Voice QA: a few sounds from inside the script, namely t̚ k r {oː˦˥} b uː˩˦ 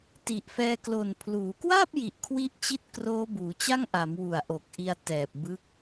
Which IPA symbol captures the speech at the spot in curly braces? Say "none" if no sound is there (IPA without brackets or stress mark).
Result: oː˦˥